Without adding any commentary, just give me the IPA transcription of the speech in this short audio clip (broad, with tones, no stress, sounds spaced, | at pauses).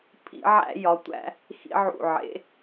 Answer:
pʰ ḭ˧˩˧ ʕ æ̰˧˩˧ j ɒ˩˧ tʷ æ̰˧˩˧ | x ḭ˧˩˧ ʕ ṵ˨˩ ʕ ḛ˩˧